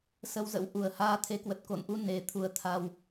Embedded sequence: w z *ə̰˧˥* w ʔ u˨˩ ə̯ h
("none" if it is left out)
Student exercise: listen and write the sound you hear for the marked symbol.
ə̰˧˥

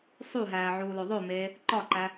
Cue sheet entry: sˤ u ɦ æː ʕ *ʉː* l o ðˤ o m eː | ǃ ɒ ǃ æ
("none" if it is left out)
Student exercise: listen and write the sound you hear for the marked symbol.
uː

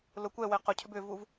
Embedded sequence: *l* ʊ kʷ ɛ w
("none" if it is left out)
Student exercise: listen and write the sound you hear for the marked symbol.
l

